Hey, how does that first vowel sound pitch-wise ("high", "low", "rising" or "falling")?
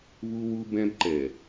high